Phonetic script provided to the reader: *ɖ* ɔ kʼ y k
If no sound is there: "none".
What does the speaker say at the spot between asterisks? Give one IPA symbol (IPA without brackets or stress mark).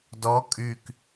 d